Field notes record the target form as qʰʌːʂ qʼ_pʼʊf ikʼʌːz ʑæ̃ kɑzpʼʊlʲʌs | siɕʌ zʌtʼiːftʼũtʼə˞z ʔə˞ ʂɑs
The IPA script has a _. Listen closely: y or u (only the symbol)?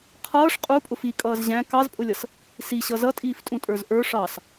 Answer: u